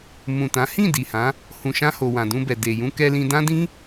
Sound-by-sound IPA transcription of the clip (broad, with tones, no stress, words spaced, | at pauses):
mũ˨tã˨˦ hĩ˦˨ di˨hã˨˦ | hũ˨ʃã˧ ho˨wã˨dũ˧bɛ˨ de˨jũ˧ kɛ˧lĩ˧dã˦ dĩ˦